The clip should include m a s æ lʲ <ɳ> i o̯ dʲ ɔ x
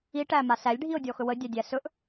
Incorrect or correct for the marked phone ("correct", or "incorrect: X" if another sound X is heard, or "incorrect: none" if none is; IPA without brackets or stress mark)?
incorrect: ɖʱ